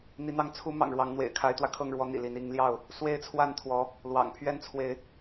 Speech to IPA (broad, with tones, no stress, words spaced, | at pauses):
n̪i˨˦n̪ɑ˥˨ŋ t͡sʰu˨˦ mɑ̰˨˩ŋɻwɑ˨˦ŋn̪wḛ˨˩ɪ̯ kʰa˨˦ɪ̯t̪wä˧kʰɤ˥˨ŋɻwɔ˨˦ n̪ḭ˨˩li˨˦n i˨˦ŋljɑ˥˨ʊ̯ | swe˦ɪ̯t͡sʰwa˥˨nt̪ʰwɔ˨˦ | lwɑ̰˨˩ŋ pʰɥɛ˦nt͡sʰwe˨˦ɪ̯